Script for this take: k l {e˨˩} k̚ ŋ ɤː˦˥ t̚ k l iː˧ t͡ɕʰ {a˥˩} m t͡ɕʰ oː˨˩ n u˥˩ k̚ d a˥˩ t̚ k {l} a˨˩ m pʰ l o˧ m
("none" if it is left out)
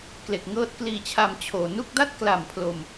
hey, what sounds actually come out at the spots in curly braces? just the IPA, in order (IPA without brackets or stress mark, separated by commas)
e˨˩, a˧, l